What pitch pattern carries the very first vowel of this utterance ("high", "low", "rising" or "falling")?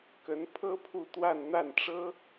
rising